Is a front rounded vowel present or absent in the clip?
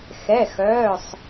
present